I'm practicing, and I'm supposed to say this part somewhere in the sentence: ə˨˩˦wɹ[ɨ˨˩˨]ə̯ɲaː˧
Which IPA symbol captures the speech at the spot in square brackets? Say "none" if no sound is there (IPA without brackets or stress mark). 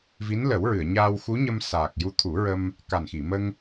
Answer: ɨ˨˩˨